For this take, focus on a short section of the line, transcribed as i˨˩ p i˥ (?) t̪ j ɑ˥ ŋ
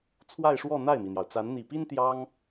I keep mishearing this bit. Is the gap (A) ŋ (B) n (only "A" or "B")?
B